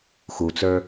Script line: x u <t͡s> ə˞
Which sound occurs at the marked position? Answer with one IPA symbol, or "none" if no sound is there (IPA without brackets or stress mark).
t͡s